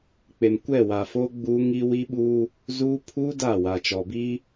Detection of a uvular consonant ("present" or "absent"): absent